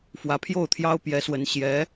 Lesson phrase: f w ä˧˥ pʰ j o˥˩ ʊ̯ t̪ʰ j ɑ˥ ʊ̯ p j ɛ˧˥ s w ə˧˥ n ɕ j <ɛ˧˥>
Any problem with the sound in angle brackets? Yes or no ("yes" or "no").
no